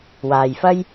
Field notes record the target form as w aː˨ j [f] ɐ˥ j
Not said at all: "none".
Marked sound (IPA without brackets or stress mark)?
f